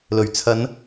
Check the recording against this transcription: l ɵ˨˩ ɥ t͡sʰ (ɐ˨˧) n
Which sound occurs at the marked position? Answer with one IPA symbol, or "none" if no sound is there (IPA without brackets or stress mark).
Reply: ɐ˨˧